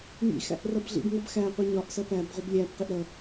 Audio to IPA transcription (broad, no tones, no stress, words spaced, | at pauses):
ŋḭ xæ̰ʔrʌbɮḭbŋʌb xæqʷi ɲɒʔsʌ pæb ʁʷɛblʲæbqiʔ ɾʌ